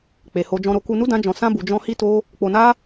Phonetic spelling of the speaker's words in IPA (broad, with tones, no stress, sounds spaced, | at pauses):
k͡p e˧ h o˦ d͡ʒ ɔ̃˧ ɾ o˧ k u˧ n u˦ d ã˦ d͡ʒ ɔ̃˧ s ã˦ b u˧ d͡ʒ ɔ̃˦ h i˦ t o˦ | k͡p o˧ n a˦